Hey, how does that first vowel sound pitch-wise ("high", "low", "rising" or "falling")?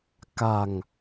low